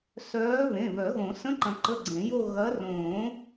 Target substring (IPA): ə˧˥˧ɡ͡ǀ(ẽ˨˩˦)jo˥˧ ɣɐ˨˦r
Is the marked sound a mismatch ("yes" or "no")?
no